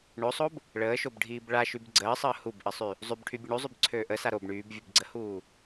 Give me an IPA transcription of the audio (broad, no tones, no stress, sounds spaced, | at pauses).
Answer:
ɳ o sˤ o b | ɭ əː ʃ o b ɖʱ iː b ɭ a ʃ y b ɡ͡ǀ əː sˤ əː h u b ʔ ə sˤ y | zˤ y b ʈʰ y bʲ ə ɳ u zˤ y b ǀʰ øː ʔ ə s a ɾ o b ɳ yː b vʲ u b ɡ͡ǀ ə h uː